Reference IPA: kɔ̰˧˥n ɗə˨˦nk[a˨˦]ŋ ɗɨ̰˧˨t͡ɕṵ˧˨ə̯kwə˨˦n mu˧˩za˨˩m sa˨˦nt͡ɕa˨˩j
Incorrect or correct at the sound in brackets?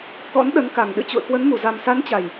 incorrect: a˨˩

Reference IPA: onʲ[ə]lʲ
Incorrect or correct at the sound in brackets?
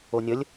correct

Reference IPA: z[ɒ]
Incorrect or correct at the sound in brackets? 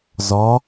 correct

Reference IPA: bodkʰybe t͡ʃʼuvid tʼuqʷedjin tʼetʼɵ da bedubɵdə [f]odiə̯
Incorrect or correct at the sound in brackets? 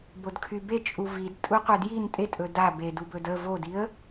incorrect: v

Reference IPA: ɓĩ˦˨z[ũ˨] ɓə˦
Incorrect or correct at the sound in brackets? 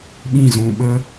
correct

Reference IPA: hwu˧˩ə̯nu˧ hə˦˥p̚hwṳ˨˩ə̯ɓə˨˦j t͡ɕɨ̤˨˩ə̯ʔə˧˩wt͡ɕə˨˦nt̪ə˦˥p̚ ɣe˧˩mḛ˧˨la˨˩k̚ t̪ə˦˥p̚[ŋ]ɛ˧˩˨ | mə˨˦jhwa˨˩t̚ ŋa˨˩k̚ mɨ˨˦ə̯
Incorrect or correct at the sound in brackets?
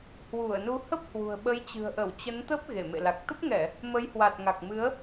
correct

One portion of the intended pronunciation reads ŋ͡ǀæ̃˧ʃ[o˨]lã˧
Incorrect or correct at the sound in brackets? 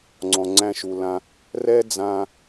incorrect: u˨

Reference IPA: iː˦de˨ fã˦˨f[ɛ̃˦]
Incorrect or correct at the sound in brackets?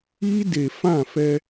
incorrect: ɛ˦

